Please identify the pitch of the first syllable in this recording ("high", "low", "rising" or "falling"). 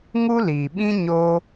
high